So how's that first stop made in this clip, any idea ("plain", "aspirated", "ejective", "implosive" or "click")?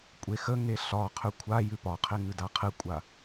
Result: ejective